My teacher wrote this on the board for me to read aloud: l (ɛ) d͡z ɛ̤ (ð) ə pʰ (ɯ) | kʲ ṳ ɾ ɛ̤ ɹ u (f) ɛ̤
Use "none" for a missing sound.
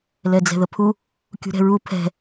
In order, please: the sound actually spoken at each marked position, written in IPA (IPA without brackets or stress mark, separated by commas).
ɛ, ð, u, pʰ